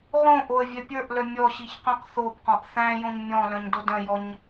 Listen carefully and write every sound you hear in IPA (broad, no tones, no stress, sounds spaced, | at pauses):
ʁ õ ʔ o ə̯ vʲ œ pʲ ə˞ ʔ l œ mʲ ɔ ɕ i ç q œ̃ q θ o b q ɔ̃ ʔ θ æ̃ j õ ɲ mʲ ɔ̃ l œ̃ ɲ d o d œ̃ j ɔ ɲ